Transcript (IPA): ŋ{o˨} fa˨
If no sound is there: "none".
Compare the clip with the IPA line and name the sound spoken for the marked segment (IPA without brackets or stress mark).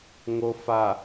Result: o˨